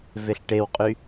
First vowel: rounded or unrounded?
unrounded